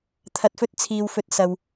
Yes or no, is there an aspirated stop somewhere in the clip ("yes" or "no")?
yes